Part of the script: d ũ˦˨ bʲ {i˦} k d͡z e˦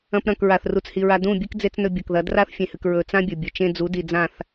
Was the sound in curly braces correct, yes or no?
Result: no